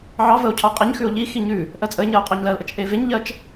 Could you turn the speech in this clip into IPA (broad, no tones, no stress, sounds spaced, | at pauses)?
ʕ ɑ v ə o̯ cʰ ɑ qʼ e ɲ x ʉ o̯ ʎ i x i ɲ ʉ | ʔ ɜ t͡sʼ ə e̯ ɲ ɜ o̯ qʼ ɑ ɲ l ɜ l ʔ ə t͡ʃ ʔ e v e ɲ ʎ ɜ t͡ʃ